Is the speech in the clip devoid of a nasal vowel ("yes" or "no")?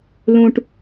no